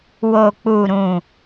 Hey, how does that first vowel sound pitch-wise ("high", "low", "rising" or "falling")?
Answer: low